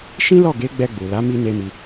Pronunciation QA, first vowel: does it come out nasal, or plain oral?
nasal